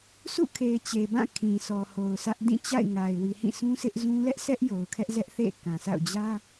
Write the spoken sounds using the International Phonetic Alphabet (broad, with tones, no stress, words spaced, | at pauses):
sʰṵ˦˨kʰe˨ɪ̯ t͡ɕe˨bã˦˨ kʰĩ˨sʰɔ˨ ho˨ʊ̯sä˦ʔ dĩ˦˨t͡ɕa̰˦˨ɪ̯ŋa˨ɪ̯ wi˨hĩ˦˨sũ˦ sɪ˦ʔzũ˦ lɛ˦ʔsʰɛ˦ʔ jo˨ʊ̯kʰɛ˦ʔzɛ˦ʔ θḛ˦˨kã˨sa̰˦˨ʊ̯ d͡ʑä˦